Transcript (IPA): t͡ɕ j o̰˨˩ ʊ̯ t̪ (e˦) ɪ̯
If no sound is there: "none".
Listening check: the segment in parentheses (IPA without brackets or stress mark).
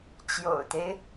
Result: e˦